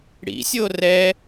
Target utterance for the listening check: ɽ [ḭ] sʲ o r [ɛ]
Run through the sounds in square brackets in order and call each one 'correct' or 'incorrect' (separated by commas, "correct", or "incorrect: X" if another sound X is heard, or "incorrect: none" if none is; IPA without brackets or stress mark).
correct, correct